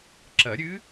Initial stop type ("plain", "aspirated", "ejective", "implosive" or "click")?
click